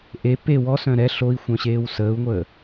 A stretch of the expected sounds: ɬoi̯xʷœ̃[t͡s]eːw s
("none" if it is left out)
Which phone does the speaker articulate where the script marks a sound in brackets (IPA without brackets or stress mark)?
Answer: ɕ